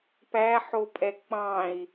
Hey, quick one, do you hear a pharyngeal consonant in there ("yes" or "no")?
yes